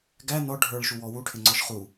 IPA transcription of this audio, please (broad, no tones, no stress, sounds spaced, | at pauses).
ɡ æ n ɔ ɖʱ ə˞ ɭ ʃ u w ɔ w u ʈʰ ɪ ŋ͡ǀ ɔ ʃ χ u